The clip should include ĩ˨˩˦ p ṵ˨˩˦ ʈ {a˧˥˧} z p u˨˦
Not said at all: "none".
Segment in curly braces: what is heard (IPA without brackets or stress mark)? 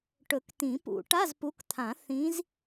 a˧˥˧